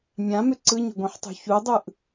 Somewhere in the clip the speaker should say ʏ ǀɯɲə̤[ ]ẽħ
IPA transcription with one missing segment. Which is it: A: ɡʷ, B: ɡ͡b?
A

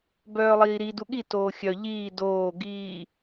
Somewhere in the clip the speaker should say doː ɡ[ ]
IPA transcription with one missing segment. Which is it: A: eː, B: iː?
B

